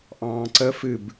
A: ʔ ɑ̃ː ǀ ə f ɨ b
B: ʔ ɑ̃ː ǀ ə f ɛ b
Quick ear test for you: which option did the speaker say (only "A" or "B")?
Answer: A